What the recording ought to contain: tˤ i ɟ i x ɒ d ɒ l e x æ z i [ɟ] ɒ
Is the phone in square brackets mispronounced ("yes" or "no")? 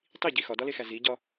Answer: no